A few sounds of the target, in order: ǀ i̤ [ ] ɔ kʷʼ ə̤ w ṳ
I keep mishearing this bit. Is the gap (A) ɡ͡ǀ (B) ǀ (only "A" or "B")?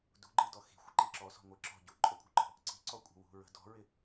B